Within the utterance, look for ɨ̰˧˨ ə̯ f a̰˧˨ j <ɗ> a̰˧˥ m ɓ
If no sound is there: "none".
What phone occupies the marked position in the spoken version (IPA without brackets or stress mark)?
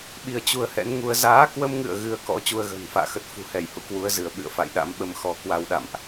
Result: ɗ